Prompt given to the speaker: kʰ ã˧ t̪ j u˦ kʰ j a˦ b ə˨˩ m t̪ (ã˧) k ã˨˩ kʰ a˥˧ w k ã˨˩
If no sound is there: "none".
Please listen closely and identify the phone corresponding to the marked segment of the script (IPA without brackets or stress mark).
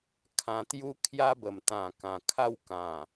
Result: ã˨˩